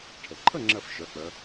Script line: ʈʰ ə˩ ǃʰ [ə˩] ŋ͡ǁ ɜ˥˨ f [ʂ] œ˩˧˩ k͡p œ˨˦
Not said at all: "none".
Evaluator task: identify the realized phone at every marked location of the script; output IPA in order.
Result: ə˥˨, ʃ

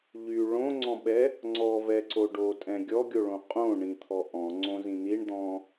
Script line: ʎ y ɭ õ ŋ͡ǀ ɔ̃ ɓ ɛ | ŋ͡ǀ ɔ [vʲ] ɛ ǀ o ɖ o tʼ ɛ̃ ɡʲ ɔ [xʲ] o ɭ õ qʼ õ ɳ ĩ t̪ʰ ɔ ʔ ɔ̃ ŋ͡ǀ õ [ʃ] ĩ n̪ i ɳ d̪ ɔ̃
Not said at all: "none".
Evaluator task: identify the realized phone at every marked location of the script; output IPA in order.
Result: v, ɡʲ, z

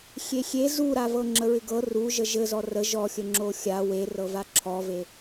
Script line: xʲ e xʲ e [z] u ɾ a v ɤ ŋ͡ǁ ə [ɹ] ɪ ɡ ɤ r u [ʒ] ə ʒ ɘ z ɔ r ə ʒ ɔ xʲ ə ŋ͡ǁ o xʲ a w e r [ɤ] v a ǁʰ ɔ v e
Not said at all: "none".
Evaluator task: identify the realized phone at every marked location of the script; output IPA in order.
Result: z, ɹ, ʒ, ɤ

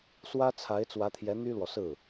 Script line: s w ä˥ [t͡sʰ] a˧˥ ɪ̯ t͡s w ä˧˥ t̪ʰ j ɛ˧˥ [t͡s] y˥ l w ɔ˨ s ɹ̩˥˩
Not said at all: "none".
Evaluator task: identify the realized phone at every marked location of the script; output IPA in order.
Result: t͡sʰ, n̪

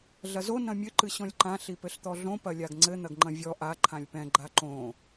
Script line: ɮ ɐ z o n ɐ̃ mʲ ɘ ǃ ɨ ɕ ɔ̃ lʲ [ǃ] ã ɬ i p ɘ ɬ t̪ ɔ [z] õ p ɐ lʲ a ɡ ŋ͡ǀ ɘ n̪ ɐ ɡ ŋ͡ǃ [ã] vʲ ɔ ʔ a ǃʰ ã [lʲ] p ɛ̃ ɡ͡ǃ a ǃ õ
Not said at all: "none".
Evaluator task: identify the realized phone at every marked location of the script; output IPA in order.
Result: ǃ, ɮ, ɐ̃, lʲ

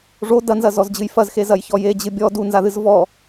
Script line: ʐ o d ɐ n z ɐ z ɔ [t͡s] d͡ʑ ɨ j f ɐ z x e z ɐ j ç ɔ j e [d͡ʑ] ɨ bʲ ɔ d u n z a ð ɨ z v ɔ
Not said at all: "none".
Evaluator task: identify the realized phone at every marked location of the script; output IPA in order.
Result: z, d͡ʑ

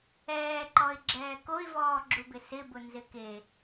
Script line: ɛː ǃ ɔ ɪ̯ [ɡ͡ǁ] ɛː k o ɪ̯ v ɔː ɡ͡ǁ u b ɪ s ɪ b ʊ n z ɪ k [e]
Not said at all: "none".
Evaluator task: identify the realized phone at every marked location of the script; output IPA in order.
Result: ɡ͡ǁ, e

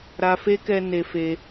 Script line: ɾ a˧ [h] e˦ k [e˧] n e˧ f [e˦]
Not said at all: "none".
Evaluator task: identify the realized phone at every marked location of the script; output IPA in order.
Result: f, ɛ˧, e˧

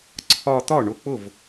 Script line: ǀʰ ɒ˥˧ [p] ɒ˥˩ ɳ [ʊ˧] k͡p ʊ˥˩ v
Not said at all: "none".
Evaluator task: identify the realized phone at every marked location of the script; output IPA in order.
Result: t̪, ʊ˧˩

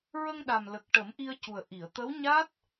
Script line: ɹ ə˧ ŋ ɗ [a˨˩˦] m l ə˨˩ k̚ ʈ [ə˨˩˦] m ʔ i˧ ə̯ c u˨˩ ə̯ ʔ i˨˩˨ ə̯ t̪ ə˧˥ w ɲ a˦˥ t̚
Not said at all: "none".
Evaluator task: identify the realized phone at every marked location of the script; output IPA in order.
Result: a˨˩, ə˨˩˦

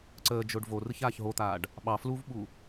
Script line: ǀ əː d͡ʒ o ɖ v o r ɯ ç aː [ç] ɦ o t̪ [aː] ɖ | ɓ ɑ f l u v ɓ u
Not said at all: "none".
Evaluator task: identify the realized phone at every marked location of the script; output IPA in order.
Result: ç, aː

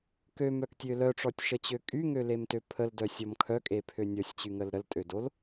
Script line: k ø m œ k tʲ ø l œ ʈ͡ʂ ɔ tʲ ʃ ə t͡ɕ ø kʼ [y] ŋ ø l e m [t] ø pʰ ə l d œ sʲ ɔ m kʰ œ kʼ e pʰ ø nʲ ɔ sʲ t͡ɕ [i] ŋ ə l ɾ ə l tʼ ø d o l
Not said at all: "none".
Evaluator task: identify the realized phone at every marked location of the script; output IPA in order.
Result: y, t, y

